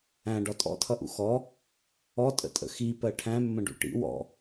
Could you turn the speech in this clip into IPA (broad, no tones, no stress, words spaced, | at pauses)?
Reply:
æ̃ɖɒ tʼɔ̰tʰʌʔṵ xɔ | ɔtʼə̰tʼə̰ xipɜ ʈʰæ̃mːə̃ɖṵ ʈḭ wɔ̰